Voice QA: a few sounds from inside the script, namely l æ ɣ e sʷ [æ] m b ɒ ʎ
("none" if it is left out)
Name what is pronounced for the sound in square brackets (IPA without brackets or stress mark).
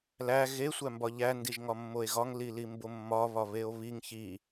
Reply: æ